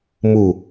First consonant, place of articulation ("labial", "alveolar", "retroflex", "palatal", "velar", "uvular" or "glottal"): labial